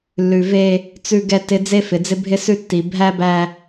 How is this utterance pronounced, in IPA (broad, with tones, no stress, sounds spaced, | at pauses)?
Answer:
lː ʉ˨ v e˦ | t͡s ʉ˨ ɡ ɛ˨ t ɪ˨ d͡z e˦ f ɪ˨ d͡z ɪ˦ bʱ ɪ˦ s ʉ˦ tː i˨ bʱ æ˦ b æ˦